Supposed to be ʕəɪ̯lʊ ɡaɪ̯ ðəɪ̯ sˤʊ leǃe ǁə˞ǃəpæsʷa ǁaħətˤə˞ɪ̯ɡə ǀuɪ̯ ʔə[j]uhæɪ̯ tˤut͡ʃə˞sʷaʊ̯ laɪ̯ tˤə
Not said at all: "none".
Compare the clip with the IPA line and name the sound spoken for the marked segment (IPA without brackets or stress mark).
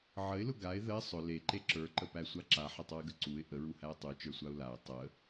ɹ